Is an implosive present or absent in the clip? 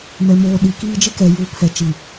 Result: present